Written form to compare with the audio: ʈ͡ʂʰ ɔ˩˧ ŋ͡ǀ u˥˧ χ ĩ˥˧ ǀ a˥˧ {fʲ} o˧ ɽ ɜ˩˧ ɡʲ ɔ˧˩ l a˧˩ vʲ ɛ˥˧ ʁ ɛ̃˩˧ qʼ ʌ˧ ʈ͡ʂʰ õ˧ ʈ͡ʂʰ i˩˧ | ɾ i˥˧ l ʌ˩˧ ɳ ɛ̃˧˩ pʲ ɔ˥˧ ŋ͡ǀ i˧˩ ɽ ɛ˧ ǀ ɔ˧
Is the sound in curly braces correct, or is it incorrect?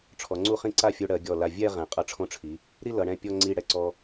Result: correct